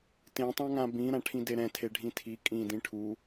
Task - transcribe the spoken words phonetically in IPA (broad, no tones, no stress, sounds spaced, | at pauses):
t ẽ tˤ ã ŋ ã b ĩ ɾ ã ʈʰ ĩ d e ɾ ɛ̃ tʰ e ɖʱ ĩ tʰ i kʼ ĩ d ĩ ʈʰ u